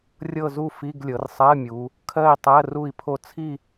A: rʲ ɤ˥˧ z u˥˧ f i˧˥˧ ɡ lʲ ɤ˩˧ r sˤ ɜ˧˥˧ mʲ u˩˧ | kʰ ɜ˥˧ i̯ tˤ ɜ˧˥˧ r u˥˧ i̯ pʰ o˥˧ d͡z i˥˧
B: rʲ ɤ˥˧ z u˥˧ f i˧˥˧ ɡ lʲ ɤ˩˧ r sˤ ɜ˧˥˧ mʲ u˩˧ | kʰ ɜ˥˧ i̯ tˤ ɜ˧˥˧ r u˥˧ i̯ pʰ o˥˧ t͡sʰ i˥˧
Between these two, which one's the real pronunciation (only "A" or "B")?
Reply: B